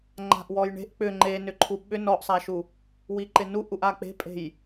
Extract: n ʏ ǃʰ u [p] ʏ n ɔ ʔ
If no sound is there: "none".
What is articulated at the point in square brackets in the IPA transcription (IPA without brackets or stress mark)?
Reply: ɓ